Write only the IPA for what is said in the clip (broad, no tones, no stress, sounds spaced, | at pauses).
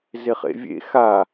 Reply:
z e χ ḛ vʲ ḛ x a